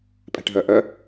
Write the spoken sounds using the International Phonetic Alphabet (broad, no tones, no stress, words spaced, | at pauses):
pʼɛ̤ʈɦœʔœ